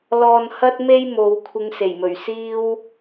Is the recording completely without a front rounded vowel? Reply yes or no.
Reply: yes